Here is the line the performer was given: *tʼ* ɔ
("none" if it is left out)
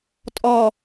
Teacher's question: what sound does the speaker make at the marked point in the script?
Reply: tʼ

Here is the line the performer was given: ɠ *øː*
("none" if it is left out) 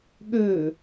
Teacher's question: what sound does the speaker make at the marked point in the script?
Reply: øː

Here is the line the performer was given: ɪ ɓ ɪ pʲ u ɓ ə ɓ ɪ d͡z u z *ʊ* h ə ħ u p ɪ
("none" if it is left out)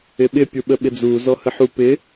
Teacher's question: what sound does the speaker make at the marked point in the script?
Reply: ɔ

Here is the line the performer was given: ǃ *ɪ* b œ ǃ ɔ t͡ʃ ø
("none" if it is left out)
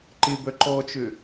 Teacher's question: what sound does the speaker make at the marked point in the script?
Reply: ɪ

